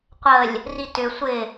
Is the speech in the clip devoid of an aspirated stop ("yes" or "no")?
yes